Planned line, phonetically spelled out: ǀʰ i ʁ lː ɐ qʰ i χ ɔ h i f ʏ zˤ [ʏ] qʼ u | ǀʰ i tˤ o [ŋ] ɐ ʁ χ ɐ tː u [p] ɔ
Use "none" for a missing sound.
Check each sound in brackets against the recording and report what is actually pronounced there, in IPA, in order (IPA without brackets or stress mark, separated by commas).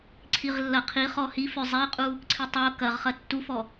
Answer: ɛ, k, f